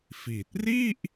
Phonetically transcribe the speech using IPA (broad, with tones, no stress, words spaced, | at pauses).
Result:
fi˨˩t̚ ri˥˩ʔ